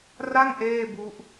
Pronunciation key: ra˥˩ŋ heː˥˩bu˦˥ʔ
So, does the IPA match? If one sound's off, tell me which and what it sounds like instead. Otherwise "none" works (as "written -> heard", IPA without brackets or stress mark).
h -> ʔ